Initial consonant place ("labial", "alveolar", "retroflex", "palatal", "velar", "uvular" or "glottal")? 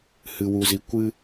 glottal